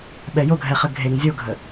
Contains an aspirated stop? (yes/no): no